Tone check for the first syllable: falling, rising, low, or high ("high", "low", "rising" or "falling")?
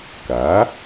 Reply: rising